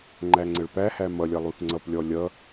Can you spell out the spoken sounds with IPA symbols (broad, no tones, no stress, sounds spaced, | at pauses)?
ŋ͡ǃ æ ŋ͡ǀ ə ɭ p æ h æ m ʌ lʲ ʌ lˠ u θ ŋ͡ǀ ʌ p lʲ ɔ lʲ ʌ